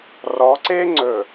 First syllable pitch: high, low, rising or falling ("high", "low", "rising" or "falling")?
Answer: rising